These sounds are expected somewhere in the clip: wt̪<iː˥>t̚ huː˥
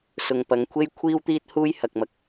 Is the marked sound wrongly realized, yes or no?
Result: no